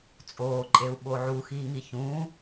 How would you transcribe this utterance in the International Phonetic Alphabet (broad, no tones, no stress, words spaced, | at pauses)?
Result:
t͡sʼoːǃʼeu̯ ɓoʕuxiːŋi çũː